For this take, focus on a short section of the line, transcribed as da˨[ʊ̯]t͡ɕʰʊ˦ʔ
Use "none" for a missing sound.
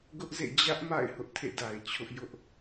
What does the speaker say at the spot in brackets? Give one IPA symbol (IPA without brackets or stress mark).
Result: ɪ̯